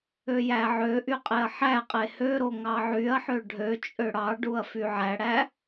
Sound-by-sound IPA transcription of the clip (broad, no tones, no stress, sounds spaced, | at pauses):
ø j æ ʕ ø ʔ y qʼ e ɐ̯ ħ æ qʼ e h ø ɾ o ŋ ɑ ʕ y ɐ̯ ħ ø ɖʱ ø t͡ʃʼ ø ɽ ɑ ɖ u ɐ̯ f y ʕ æ ɽ æ